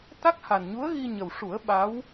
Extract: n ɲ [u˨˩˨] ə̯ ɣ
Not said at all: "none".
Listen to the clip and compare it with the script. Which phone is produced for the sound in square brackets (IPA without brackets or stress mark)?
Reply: u˧˥